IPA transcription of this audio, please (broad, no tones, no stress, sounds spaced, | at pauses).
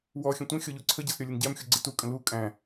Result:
w ɔ xʲ ə̃ tʷ ə̃ xʲ ɔ ʎ u ǀʰ ə ɟ ʌ s ɾʲ ɔ lʲ ə n ɟ æ m xʲ u ɡ͡ǀ ɪ t u kʼ ə̃ l u kʼ æ̃